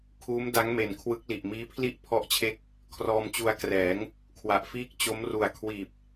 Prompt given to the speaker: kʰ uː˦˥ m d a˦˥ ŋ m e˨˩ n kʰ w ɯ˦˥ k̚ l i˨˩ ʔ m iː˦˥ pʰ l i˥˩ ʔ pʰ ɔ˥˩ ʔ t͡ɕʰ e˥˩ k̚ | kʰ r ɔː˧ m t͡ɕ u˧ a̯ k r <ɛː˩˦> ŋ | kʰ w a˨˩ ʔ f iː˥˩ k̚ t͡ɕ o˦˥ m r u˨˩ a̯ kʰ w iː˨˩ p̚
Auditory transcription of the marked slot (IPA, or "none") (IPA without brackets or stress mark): ɛː˩˦